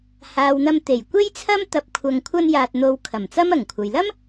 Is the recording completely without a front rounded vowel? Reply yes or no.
yes